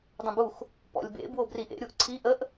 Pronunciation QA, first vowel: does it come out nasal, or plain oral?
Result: nasal